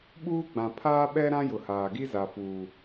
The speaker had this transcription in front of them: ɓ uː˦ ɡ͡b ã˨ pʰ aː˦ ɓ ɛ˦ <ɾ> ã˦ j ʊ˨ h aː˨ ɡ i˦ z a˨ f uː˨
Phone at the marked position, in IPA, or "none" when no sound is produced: ɾ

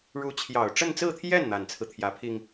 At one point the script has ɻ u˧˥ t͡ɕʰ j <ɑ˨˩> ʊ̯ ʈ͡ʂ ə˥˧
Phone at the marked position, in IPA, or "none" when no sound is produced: ɑ˨˩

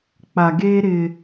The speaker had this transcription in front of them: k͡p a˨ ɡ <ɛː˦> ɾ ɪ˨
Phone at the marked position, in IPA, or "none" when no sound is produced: eː˦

